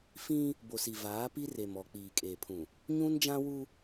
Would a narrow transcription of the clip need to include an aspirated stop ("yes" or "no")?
yes